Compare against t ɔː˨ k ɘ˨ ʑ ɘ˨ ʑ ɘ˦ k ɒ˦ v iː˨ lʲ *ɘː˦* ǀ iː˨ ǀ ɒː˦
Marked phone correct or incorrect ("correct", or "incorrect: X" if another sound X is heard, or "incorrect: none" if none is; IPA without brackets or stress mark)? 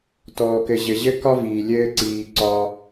correct